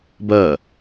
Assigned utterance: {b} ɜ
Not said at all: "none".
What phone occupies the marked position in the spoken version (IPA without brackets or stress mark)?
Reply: b